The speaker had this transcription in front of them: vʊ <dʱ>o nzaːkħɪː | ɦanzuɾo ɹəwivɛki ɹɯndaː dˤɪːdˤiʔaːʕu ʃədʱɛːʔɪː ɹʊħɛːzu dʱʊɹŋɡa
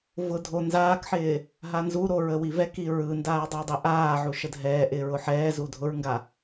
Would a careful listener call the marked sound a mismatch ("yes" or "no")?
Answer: no